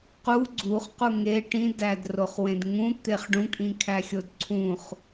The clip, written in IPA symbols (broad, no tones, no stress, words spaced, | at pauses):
qu ɡ͡ǀuχqu ŋe ʈĩdædroχwẽd ŋũt̪eχ ɖũkʼĩkʰæxʲod ǀʰũχ